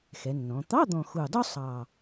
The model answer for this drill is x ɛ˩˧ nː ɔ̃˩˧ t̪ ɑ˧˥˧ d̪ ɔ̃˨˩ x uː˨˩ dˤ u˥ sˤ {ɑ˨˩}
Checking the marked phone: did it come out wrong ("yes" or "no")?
no